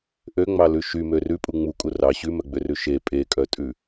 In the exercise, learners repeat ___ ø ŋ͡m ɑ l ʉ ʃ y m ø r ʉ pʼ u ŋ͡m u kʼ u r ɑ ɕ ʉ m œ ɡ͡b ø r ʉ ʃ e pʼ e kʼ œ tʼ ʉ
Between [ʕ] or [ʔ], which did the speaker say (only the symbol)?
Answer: ʔ